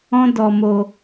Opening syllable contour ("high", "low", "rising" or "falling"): high